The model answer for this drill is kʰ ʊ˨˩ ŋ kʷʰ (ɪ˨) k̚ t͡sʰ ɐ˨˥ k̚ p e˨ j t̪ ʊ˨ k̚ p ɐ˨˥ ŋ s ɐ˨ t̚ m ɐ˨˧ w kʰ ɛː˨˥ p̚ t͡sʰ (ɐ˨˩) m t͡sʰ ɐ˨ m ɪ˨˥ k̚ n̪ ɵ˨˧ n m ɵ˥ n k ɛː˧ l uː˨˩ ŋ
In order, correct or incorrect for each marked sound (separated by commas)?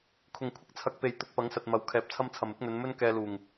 incorrect, incorrect